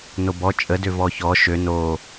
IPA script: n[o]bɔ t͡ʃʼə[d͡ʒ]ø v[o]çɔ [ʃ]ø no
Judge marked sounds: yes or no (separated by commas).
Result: yes, no, no, yes